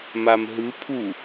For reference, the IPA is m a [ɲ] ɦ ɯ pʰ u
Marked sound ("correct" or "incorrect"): incorrect